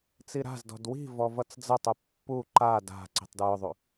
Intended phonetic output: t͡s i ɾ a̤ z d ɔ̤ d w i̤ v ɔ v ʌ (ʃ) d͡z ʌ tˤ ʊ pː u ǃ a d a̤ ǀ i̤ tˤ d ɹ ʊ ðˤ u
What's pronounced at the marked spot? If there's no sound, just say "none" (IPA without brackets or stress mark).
t͡s